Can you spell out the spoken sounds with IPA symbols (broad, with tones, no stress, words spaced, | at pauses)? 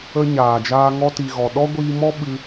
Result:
ə˦ɲaː˨d͡ʒaː˦ ŋɔ˧ti˨ ɣɔ˨ɗɔ˦ɡʷiː˧mɔ˦ ɓɨ˧